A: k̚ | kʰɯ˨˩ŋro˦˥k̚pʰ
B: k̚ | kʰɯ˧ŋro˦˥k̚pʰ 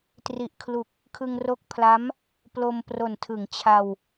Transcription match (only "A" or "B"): B